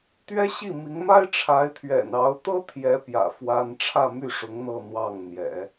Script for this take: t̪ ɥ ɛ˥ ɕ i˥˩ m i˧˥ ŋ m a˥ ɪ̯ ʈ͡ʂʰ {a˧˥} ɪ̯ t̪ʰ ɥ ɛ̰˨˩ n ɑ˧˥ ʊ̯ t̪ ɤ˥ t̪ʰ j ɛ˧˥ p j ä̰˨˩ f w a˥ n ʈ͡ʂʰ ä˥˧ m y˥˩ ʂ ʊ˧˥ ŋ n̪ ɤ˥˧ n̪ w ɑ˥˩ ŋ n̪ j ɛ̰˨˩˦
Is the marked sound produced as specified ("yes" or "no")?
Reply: yes